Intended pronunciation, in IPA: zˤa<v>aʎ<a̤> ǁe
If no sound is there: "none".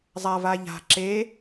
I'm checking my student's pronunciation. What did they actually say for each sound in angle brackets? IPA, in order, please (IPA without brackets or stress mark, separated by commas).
v, a̤